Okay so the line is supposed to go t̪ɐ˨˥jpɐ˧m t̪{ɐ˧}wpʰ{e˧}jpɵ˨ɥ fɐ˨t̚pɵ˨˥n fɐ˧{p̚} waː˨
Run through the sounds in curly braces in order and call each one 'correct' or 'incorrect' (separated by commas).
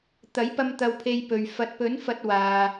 correct, correct, incorrect